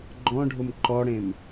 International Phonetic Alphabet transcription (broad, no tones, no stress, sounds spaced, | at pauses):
ɡ͡ǃ ɔ̃ ɖʱ ʊ m ǃ ɔ ɽ ẽ m